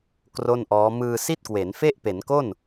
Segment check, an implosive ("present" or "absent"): absent